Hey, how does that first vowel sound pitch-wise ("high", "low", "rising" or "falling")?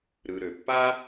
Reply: low